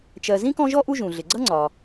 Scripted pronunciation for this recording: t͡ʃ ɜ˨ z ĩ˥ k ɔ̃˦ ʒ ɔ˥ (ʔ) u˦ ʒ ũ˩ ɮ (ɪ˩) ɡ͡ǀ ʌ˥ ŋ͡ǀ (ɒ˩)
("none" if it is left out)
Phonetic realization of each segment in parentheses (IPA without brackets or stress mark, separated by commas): ʔ, ɪ˩, ɒ˩